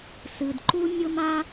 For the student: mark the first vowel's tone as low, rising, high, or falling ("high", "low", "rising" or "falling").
low